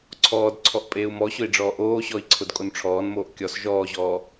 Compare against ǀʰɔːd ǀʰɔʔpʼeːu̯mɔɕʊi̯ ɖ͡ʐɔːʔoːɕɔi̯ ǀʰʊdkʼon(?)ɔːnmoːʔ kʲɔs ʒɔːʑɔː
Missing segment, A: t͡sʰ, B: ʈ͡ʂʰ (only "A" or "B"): B